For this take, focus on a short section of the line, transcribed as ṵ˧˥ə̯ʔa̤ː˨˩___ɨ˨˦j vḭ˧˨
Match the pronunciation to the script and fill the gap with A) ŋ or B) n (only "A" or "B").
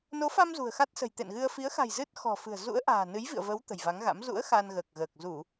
B